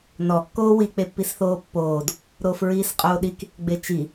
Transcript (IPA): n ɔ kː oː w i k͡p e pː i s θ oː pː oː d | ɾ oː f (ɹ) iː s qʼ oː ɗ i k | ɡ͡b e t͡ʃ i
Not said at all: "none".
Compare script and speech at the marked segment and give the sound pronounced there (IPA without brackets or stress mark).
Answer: ɹ